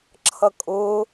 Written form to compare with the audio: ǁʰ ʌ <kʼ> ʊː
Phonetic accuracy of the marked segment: correct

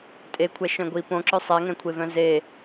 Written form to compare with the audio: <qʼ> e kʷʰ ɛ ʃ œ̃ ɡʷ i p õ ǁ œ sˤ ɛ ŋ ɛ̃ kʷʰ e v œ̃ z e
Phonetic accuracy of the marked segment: incorrect: tʼ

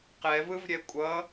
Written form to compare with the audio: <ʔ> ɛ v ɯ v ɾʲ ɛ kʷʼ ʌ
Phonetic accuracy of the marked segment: incorrect: q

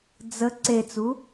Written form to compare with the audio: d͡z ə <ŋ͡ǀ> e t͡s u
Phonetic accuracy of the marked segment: incorrect: ǀ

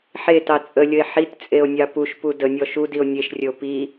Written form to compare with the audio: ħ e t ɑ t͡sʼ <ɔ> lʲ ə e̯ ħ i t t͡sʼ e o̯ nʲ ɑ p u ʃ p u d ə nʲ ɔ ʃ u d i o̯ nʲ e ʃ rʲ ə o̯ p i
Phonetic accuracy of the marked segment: incorrect: ə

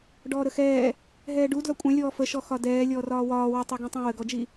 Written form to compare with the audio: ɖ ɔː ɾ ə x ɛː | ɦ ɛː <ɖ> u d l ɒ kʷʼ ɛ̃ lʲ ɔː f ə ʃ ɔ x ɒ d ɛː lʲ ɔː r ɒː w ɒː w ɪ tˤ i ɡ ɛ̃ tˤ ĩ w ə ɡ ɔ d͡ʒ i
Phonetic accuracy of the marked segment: correct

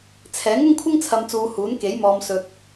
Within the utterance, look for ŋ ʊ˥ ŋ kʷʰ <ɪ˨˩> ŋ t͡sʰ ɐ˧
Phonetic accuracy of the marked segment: incorrect: ɪ˥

